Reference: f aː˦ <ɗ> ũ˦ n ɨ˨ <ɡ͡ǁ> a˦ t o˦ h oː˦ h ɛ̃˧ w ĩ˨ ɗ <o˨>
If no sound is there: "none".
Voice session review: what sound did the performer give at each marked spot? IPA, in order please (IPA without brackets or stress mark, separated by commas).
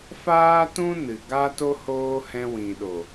t, ɡ, o˨